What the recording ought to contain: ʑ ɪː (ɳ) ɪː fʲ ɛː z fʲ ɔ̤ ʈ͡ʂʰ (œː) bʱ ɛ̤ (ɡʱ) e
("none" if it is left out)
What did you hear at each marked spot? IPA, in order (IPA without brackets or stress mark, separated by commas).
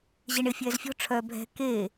ɳ, œː, k